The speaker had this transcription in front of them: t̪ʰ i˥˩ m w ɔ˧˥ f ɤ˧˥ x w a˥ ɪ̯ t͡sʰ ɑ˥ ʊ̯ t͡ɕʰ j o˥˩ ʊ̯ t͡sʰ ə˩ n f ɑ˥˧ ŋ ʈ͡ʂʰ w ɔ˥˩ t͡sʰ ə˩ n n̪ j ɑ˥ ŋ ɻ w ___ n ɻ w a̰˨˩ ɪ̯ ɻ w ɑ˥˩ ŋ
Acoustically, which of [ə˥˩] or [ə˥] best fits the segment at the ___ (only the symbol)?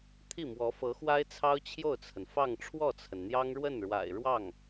ə˥˩